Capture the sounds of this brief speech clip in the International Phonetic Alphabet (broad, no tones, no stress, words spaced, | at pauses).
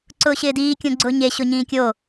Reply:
ǀʊːɕɪːdiː kʲõɡ͡ǀʊːɲe ɕʊɲĩːkʲo